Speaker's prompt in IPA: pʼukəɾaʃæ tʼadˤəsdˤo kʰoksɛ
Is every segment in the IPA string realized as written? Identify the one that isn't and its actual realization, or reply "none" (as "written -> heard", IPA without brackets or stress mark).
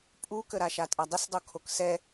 æ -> a